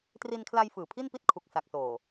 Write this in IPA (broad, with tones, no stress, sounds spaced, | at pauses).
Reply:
t r i˧ n kʰ l a˧ j f ɯː˨˩ pʰ i˥˩ n p i˥˩ t̚ kʰ u˨˩ k̚ s a˨˩ k̚ s oː˨˩